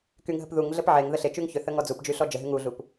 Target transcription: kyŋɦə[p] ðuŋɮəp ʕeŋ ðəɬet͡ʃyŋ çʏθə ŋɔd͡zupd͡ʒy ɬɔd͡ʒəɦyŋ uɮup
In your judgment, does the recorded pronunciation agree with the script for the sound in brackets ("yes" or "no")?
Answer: yes